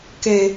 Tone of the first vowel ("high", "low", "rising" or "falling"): low